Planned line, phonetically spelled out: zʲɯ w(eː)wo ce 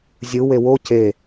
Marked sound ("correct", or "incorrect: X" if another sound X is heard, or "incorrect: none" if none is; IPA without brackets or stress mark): incorrect: e